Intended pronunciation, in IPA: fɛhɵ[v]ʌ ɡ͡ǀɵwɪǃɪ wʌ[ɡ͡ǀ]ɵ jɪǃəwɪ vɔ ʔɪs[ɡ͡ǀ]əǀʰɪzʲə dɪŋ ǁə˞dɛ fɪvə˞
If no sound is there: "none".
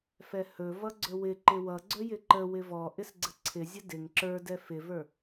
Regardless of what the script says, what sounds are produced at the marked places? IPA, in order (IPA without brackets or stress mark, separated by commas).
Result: v, ɡ͡ǀ, ɡ͡ǀ